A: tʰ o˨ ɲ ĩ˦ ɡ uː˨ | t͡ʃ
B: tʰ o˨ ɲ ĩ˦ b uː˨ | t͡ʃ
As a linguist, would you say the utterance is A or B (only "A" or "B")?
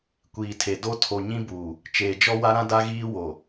B